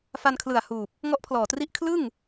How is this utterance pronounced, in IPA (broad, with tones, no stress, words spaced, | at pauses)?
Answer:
fa˧nkʰlɯ˨˩a̯ huː˨˩p̚ | ŋɔ˦˥ʔpʰlɔː˨˩tri˦˥ʔ kʰlɯ˥˩ŋ